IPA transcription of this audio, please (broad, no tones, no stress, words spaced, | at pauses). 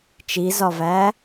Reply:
t͡ʃizɒvæ